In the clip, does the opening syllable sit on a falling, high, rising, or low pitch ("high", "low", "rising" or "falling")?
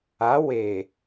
rising